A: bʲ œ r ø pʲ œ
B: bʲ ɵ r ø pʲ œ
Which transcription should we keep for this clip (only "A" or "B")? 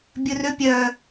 B